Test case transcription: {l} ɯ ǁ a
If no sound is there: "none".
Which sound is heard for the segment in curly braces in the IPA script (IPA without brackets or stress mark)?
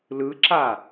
l